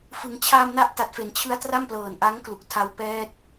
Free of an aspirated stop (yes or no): no